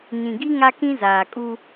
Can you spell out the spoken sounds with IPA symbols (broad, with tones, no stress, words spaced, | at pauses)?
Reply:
ɲĩ˨ɡi˦ ŋa˦kĩ˦zaː˨kʼu˦